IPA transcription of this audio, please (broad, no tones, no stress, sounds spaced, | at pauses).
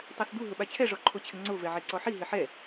tˤ a s d u ɦ ʊ ɓ a t͡ɕʰ ɛ ʐ ɔ ǃʰ o t͡ɕʰ ɪ ŋ͡ǀ o v ɛ ʕ e ǀ ɔ ħ i ɦ ɪ ħ ɛ